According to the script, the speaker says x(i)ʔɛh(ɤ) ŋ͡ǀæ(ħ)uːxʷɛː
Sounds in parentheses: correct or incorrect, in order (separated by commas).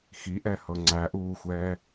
correct, correct, incorrect